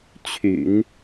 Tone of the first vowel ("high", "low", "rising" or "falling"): low